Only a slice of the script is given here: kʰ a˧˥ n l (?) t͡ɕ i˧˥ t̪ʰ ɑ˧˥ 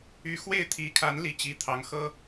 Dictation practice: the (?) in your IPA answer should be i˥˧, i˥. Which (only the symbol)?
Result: i˥